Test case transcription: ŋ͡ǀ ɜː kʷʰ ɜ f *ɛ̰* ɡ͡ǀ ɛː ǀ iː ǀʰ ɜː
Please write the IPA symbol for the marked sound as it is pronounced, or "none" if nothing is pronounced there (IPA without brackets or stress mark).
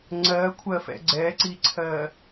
ɛ̰